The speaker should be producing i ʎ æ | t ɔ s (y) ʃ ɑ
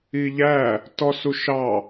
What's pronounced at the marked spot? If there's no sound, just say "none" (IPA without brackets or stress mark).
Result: u